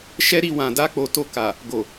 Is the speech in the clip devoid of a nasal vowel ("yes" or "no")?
no